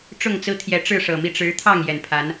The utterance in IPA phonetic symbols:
ʈ͡ʂ ʊ˥˨ ŋ t͡s ɹ̩˦ t̪ʰ j ɛ˨˦ ʈ͡ʂ ɻ̩˥˨ ʂ ɤ˨˩ m i˥˨ ʈ͡ʂ ɻ̩˨˦ t̪ʰ ɑ˥˨ ŋ j ɛ˨˩ n pʰ a˨˦ n

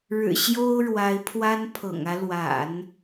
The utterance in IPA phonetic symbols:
ɻ ɻ̩˨˩ ɕ j o˥ ʊ̯ ɻ w a˧˥ ɪ̯ pʰ w a˥ n pʰ ɤ̰˨˩ ŋ ä˦ l w a̰˨˩˦ n

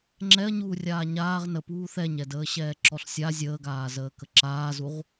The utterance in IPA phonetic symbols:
ŋ͡ǁ ɛ ɐ̯ ɲ uː rʲ aː ɲ aː ʁ n ə p uː θ ɛ ɲ ɛ d əː ɕ ɛː ǁ ɔ ɬ sʲ a zʲ əː ɡ aː z əː k ə ǁ aː z u ʁ

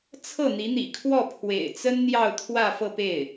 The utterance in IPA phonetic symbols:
t͡sʰ ɤ˥˩ n̪ i˧˥ n̪ ḭ˨˩ kʰ w ɔ˥˩ pʰ w ḛ˨˩ ɪ̯ t͡s ə˥ n n̪ j ɑ˥˧ ʊ̯ t̪ʰ w ä˥˧ f ɤ˥˧ p e˥˩ ɪ̯

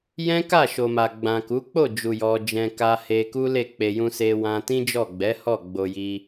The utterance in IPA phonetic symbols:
j ɛ̃˦ k a˦˨ ʃ o˨ m a˨ ɡ͡b ã˨ k u˨˦ k͡p o˦˨ d͡ʒ u˨ j ɔ˧ d͡ʒ ɛ̃˧ k a˧ h e˧ k u˦ l e˦˨ k͡p e˧ j ũ˦ s e˦ w ã˦ t ĩ˦ d͡ʒ ɔ˦˨ ɡ͡b ɛ˨˦ h ɔ˦˨ ɡ͡b o˧ j i˧

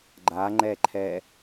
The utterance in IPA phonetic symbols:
ɡ͡ǃ a ŋ͡ǃ ɛ ǃʰ ɛ

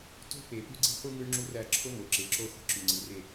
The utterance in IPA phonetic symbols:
t o̤˦ p e˨ p ʉ˦ ɡ͡ǀ i̤˦ χʷ ɯ˦ ŋ ɯ˦ ɳ ŋ͡ǁ u˦ r æ˦˨ ǁʰ o˦ ŋ o˨ ǁ e˨ ǁ o˦ χʷ ə̤˦˨ ǁ ʉ˨ ŋ͡ǀ ɯ˨ r e˦˨

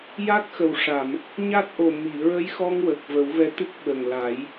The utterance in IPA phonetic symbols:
j a˦˥ k̚ x ə˨˩ w ʂ a˨˩˨ m | ɲ a˦˥ t̚ ʔ o˨˩ m i˨˩˨ ɹ ə˧˥ j x ɔ˧ ŋ w ə˨˩ k̚ v ə˨˩˦ w v ɛ˧˥ t̪ ɨ˦˥ k̚ ɓ ə˨˩ ŋ l a˨˩˦ j

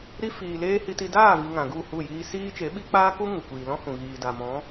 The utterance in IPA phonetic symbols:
ɾ i˧ f iː˨ l eː˦ h i˧ t i˧ d aː˦˨ v i˨ ŋ ã˨ ɡ u˦˨ h u˦˨ j iː˧ s iː˦ t͡ʃ e˨˦ ɓ i˦ k͡p aː˦ k u˦ ŋ u˨ kʷ iː˨ l ɔ̃˦ h ũ˨ ɣ iː˨ d a˨ m ɔ̃˨˦

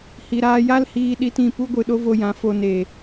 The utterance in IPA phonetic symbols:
h i˨ ɾ aː˧ j a˦ l h iː˧ ɗ i˧ t ĩ˦˨ p u˦ ɡʷ ɨ˨ ɗ o˦ v o˧ j ã˨˦ f o˧ n e˨

